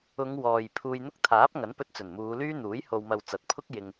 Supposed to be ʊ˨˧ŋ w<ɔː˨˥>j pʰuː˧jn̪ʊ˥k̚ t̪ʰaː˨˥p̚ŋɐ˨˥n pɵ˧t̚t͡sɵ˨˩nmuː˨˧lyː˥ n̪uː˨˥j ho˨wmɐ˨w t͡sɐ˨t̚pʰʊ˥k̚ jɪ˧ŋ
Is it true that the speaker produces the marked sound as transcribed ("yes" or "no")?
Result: no